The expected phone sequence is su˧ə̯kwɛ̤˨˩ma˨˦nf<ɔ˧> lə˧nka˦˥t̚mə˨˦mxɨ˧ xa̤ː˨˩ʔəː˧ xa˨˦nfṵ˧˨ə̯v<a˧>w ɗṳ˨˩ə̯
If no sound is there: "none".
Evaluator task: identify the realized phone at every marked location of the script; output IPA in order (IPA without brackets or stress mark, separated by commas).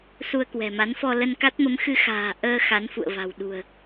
ɔ˧, a̤˨˩